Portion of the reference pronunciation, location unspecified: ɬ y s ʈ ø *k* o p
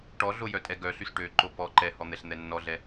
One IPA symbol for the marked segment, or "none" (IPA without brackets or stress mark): ǃ